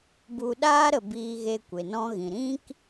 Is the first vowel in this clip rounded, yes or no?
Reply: yes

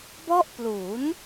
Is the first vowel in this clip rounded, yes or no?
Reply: yes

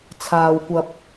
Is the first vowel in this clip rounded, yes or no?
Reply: no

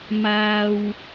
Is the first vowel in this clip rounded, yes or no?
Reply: no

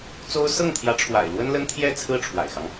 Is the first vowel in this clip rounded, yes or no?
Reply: yes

